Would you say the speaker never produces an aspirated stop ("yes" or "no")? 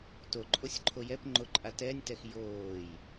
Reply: no